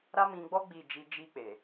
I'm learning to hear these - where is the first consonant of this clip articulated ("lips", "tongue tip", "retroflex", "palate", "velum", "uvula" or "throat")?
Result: tongue tip